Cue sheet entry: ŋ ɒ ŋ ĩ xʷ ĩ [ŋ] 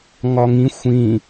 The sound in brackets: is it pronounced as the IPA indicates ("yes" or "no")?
no